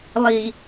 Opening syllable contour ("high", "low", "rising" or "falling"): low